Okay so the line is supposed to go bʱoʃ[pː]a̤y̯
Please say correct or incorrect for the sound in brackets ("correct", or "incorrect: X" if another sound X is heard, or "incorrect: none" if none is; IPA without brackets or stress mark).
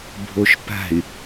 incorrect: p